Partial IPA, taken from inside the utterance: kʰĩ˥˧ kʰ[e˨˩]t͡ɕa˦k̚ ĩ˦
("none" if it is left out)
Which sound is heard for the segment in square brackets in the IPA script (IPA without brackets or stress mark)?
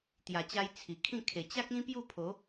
e˨˩